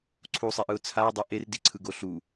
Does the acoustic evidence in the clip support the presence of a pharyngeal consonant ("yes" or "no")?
no